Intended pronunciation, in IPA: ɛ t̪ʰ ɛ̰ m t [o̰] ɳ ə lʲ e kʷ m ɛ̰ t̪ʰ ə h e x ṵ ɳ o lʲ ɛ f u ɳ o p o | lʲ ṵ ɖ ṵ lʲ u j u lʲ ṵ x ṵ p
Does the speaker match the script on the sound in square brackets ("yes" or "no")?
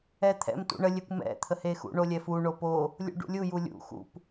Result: no